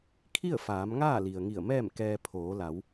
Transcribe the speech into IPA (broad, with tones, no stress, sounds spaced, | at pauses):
kʰ i˥˨ ə̯ f aː˩˧ m ŋ aː˥˨ l i˩ ə̯ ŋ i˧˩ ə̯ m ɛː˥˨ m k ɛː˧ pʰ oː˩˧ l a˩˧ w